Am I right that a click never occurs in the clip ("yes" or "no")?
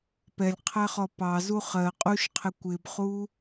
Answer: yes